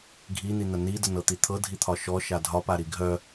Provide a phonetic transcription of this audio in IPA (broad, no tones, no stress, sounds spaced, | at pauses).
ɡʱ i n̪ i n̪ ə n i d ə n ɤ t̪ i t̪ʰ ɤ dʱ i t̪ʰ ɒ ʃ ɔ ʃ a dʱ ɒ p a ɾ i ɡʱ œ